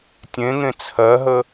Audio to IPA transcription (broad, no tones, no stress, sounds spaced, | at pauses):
tʲ ẽ ŋ ẽ t͡sʰ ɜ ɦ ə